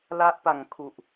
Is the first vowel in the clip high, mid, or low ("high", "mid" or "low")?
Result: low